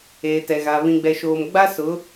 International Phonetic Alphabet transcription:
eː˨ t ɛ˨ ɣ a˨ β ĩ˨ ɡ͡b ɛ˨ ʃ oː˨ m ɡ͡b a˦ s ʊ˨˦

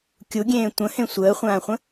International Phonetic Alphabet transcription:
kʲ u ɡʲ ẽː tʷ ə̃ h ẽ sʷ əː χʷ ãː χʷ ə̃

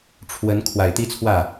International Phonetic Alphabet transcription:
ʈ͡ʂʰ w ə˧˥ n kʰ w a˨˩ ɪ̯ t̪ i˥ t͡sʰ w ä˥˩

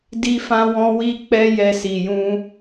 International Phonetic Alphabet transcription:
d i˧ f ã˧ w ɔ̃˧ w i˦ k͡p ɛ˦ j ɛ˧ s i˨ j ũ˧

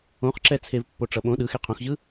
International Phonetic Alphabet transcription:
õ χ ǁ ɛ t͡sʰ e v pː o ʈ͡ʂ ʌ ɓ õ ɗ ɯ x e qʰ õ x ʑ ɯ

